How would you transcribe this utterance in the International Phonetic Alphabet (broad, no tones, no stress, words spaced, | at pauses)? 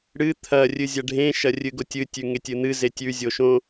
ɽɨ t̪ʰɐ rʲɨzʲɐɖʱẽ ʃɐrʲɨɡotʲɨ tʲʉŋetʲɨn̪ɨ zetʲʉ zʲoʃõ